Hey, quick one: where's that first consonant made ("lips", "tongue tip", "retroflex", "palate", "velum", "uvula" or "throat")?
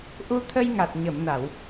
throat